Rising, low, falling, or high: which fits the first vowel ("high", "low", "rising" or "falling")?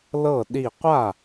falling